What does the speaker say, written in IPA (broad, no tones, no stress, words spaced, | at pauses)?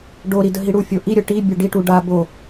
ɖoɾi dəɦiɽufʲo ʔiɾʲə ʈibʲə ɖiʈu ɖa bo